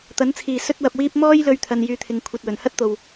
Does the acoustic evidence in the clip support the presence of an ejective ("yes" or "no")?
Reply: no